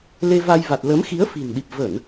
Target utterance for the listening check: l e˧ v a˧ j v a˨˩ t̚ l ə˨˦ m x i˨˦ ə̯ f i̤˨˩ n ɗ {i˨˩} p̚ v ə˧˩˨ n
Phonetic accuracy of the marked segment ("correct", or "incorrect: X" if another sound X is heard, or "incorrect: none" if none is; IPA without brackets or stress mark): correct